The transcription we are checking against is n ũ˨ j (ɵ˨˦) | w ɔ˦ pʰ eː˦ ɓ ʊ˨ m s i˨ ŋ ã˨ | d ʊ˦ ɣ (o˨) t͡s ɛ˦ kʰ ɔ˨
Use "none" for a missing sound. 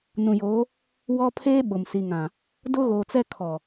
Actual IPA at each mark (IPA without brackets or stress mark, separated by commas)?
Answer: o˨˦, oː˨